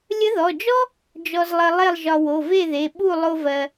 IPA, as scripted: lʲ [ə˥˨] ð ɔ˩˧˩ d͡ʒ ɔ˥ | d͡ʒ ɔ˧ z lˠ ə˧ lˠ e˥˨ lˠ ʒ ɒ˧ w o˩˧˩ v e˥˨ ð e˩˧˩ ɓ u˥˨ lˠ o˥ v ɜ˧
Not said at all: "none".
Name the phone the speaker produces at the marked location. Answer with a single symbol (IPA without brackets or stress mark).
ə˧˥